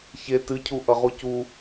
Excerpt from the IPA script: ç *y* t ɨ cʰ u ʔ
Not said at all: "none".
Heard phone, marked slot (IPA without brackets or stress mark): e